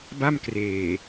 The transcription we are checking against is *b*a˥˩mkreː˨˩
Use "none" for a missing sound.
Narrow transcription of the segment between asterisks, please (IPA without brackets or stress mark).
b